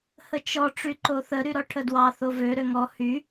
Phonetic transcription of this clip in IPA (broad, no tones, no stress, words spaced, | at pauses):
hət͡ʃɔ ʈ͡ʂyǃoθə ɾyɾɔʈʰədwɑ θovø ɾøŋɔ hy